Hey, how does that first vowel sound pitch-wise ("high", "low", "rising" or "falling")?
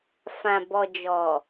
low